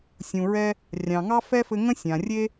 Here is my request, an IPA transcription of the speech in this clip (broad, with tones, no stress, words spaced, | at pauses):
sʲũ˩ɹɛ˧ | rʲɑ̃˩ŋɑ˥fɛ˥fɘ˧ ŋə̃˥sʲã˩ rʲe˥